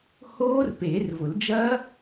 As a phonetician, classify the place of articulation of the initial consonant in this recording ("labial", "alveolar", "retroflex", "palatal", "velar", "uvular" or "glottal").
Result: glottal